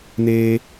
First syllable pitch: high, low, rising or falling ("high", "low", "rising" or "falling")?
high